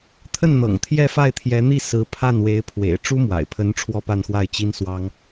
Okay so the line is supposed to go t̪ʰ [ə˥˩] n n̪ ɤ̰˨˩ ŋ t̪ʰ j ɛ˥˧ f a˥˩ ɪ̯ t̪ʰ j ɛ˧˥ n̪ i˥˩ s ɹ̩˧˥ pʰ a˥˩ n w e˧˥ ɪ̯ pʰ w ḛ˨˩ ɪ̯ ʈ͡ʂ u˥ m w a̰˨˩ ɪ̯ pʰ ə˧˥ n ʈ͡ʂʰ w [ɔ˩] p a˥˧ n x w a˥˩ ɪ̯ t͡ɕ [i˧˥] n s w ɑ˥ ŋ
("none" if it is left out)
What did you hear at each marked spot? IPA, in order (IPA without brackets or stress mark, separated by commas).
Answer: ə˥˩, ɔ˥˧, i˥